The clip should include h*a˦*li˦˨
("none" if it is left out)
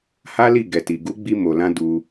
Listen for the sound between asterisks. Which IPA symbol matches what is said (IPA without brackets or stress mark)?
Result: a˦